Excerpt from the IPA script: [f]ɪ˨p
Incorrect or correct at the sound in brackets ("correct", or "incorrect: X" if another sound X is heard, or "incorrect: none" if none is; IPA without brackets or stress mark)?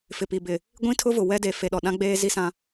correct